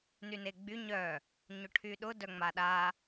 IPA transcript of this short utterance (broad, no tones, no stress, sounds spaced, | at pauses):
n y n e ɡ͡b y ɲ œ | ɲ ʊ ʈʰ y ɗ ʊ d œ ŋ͡m a ɗ a